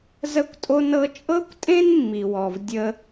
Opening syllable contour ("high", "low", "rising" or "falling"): high